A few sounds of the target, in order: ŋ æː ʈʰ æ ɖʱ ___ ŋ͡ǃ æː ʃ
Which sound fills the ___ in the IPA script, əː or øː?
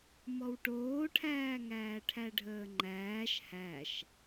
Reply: əː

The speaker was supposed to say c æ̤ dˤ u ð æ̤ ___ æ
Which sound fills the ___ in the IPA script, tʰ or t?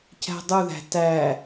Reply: t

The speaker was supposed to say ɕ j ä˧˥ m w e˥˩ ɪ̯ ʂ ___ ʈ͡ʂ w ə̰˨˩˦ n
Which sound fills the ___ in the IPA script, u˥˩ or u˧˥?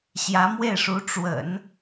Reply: u˧˥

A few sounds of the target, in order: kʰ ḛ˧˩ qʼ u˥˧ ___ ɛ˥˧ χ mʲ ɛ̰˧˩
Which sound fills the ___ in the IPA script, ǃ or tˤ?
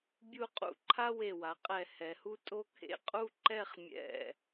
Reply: ǃ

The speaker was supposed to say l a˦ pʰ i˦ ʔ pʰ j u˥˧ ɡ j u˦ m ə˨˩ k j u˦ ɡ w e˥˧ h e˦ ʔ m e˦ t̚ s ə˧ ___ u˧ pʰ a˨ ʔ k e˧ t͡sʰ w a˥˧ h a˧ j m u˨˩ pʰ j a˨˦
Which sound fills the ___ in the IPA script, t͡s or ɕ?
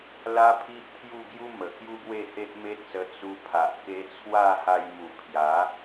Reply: t͡s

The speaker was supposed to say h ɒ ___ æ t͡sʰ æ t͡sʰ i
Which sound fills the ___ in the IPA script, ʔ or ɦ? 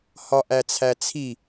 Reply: ʔ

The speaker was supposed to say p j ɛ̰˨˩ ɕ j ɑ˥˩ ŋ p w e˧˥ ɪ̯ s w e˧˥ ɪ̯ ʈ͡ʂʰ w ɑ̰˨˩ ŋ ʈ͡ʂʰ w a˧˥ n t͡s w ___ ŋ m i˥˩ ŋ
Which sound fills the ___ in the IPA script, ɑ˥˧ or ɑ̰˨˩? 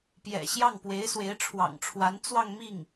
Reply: ɑ˥˧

